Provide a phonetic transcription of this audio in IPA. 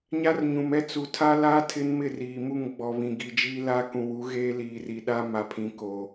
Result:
ɲa˦rɲũ˨m ɛ˦ t͡su˨tʰa˦laː˦ tʰɪ˦nmɪ˦˨ riː˨mu˦˨ŋ ɡ͡bɔ˨βĩ˨ɡi˨d͡ʒi˦ la˦ kũ˨wu˨˦ ɣeː˦liː˨ri˨ɗa˦ ma˨pʰĩ˨koː˨

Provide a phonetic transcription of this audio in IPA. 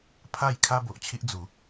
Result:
pʰa˥˧j kʰa˦bo˨ʔt͡ɕʰi˦ʔ d͡zu˨˦

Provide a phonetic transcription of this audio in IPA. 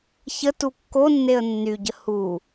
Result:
çətu kːonːeə̯ nːyɟə hu

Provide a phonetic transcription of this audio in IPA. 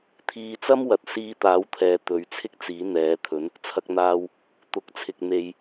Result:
t̪ʰiː˧t͡sɐ˥m wɐ˨t̚siː˧t̪aː˨˥wt̪ʰɛː˨˧ t̪ɵ˨˧ɥt͡sʰɪ˥k̚t͡siː˨˥ n̪ɛː˨˥t̪ʰɵ˨˥n | t͡sʰɐ˧k̚n̪aː˧w | t̪ʊ˨˥k̚t͡sʰɪ˨k̚ n̪e˨j

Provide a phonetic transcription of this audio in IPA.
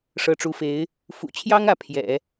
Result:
ʂɤ˧˥ʈ͡ʂu˧˥fe˧˥ɪ̯ | fṵ˨˩t͡ɕʰjɑ˥ŋ ä˧˥pʰjɛ̰˨˩˦

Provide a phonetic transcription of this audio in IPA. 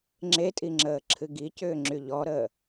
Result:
ŋ͡ǁetʼiŋ͡ǁəːǁʰɨ ɡicʏːŋ͡ǁy ʎɔɾəː

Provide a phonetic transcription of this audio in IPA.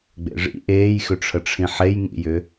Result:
ɡ͡bḛʐḭ ʔeːjxʏʈ͡ʂʰəʈ͡ʂʰĩ ħejŋḭjʏ

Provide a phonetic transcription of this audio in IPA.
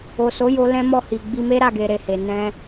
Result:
o˨so˨˦jo˧ lɛ̃˦mɔ˦˨hi˨ ɡ͡bi˧me˦ɾa˦˨ɡe˨ ɾe˨he˨ nɛ̃˧

